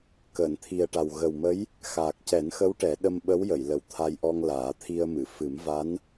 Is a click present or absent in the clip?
absent